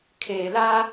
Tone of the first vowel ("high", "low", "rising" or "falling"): low